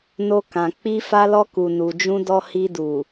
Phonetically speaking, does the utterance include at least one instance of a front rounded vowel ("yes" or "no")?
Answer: no